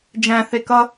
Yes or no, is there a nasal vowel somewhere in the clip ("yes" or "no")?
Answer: yes